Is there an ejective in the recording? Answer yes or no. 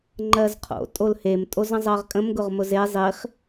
yes